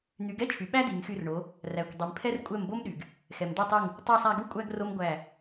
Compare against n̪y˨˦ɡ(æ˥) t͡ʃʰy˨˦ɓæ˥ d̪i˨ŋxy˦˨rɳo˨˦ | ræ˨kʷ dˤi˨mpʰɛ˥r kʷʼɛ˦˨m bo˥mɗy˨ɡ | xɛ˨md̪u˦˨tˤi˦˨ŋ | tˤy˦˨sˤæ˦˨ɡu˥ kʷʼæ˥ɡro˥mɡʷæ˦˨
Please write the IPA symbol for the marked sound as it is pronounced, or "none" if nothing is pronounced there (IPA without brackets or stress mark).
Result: ɛ˥